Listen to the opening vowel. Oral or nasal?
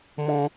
nasal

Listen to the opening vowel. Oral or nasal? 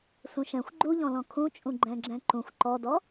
nasal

